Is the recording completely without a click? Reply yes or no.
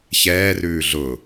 yes